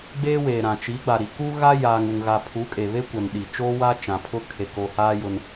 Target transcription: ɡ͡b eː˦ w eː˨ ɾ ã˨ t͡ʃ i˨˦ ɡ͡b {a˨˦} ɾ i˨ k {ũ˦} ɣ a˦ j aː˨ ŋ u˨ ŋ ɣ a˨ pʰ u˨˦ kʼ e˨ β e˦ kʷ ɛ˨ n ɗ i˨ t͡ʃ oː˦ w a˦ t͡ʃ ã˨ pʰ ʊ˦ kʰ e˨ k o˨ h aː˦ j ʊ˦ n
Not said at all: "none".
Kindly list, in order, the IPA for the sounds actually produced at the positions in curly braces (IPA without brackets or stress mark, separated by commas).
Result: a˨, u˦